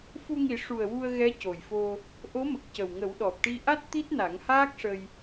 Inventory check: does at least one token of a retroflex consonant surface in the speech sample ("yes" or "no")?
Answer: yes